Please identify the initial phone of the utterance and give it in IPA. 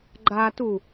ɡ͡ǃ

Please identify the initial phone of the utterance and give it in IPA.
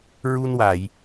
ɹ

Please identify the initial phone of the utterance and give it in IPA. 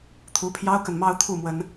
t̪ʰ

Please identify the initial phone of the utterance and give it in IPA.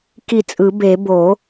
k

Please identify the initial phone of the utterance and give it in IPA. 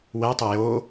w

